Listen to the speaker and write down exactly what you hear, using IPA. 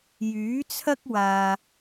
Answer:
j yː˨˥ t͡sʰ ɐ˥ k̚ w aː˨

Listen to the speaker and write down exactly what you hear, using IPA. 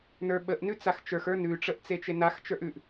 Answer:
n ə˞ ɓ ə ʔ n ʉ t͡s a x t͡ʃ ə˞ x ə˞ n ʉ ʈ͡ʂ ə ʔ t͡s e t͡ʃ e n a x t͡ʃ ə˞ ʔ ʉ ʔ

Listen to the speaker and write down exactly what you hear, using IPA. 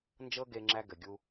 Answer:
n d͡ʒ ɤ˦ ɡ e˧ ŋ͡ǁ æ˦ ɡ ɘ˨ ɡʲ u˦

